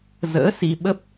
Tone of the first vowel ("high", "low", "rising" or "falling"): rising